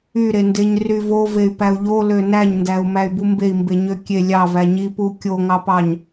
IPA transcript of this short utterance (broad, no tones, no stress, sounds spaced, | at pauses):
y ɾ e n d e ɲ r y v o v e y̯ p æ u̯ ʎ o l ø n æ ɲ n d æ u̯ m æ y̯ b u m b e i̯ m b e ɲ ø kʲ e lʲ ɑ v æ ɲ i p u kʲ o ŋ ɑ p ɑ ɲ